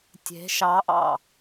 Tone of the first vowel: rising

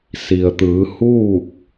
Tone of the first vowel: low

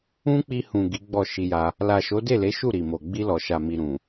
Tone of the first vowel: high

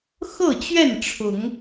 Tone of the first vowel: falling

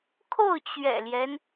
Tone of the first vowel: falling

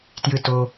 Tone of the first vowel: low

